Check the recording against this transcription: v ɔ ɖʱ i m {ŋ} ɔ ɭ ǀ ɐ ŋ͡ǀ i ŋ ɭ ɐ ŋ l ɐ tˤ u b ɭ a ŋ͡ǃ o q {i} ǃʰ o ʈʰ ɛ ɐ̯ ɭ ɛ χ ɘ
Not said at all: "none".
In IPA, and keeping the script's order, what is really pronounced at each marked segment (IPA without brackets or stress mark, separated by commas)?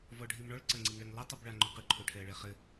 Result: ɳ, ɨ